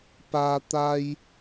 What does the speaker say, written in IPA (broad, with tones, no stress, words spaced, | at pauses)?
paː˧ t̪a˧j